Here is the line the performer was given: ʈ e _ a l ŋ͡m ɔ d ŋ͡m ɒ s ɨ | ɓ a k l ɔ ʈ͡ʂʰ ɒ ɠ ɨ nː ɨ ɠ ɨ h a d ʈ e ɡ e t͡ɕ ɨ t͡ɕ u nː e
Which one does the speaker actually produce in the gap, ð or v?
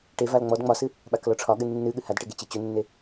v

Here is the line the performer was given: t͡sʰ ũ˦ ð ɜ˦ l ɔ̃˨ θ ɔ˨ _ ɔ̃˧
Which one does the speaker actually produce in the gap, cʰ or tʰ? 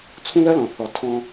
tʰ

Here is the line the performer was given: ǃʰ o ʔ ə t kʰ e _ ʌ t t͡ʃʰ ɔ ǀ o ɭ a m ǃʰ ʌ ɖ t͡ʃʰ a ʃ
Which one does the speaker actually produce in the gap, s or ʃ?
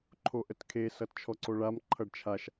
s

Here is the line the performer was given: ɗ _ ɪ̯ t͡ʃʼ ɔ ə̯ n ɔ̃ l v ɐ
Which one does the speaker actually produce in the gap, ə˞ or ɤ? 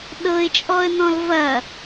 ɤ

